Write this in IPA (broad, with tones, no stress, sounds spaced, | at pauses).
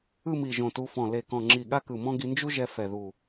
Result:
ɯ˥˧ m i˧˩ ʒ õ˧˩ t u˧ f ɔ̃˧˩ l e˧˩ k ɔ̃˧˩ ŋ͡ǁ i˧˩ ɠ a˥ k ɯ˧˩ m ɔ̃˥ ɡ i˧ n d͡ʒ u˥ ʒ ɛ˧ f ɛ˧˩ ð u˧˩